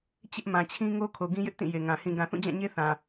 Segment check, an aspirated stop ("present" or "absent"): present